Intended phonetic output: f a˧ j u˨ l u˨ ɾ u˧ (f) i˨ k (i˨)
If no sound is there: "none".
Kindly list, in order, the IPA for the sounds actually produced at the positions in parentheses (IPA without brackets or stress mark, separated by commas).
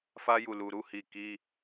h, i˧